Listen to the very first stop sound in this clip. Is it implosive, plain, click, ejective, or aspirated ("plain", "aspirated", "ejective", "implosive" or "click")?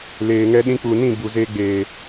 implosive